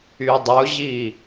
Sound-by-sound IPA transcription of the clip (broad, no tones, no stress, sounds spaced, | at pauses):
y dˤ ʊ ʑ i